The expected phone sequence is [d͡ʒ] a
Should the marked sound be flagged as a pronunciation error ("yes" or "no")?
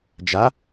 no